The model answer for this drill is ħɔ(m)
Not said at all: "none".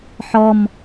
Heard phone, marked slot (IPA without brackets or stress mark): m